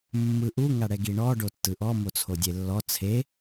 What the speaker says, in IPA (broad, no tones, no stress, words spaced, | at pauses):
mːɯʔu ŋaɽɛɡiɳɔ ɖotːɯʔɔ mot͡sʰodʲelːɔ t͡sʰe